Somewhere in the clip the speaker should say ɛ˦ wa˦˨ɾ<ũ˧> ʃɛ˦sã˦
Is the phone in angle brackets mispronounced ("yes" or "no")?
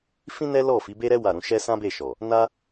no